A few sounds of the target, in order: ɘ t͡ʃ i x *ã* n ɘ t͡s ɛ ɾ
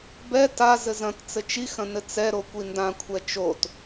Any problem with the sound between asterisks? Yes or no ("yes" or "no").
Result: yes